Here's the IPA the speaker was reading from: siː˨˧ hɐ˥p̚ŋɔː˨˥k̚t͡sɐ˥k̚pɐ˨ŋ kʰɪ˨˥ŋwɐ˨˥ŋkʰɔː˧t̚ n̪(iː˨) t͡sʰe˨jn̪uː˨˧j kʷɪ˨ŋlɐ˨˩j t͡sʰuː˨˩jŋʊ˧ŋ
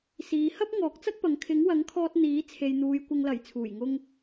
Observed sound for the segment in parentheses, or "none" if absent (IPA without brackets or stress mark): iː˨˥